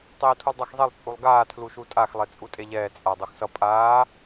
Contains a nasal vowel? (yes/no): no